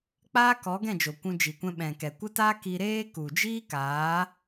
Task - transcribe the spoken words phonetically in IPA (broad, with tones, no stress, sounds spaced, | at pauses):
k͡p aː˦ k ɔ˨˦ ɡ ɛ̃˦˨ d͡ʒ o˨ kʷ ũ˧ d͡ʒ i˨ kʷ ɛ̃˧ ɓ ɛ̃˨ k ɛ˨ kʷ ə˦ t aː˦ k i˧ ɾ eː˦ k u˨ d͡ʒ iː˦ k aː˨˦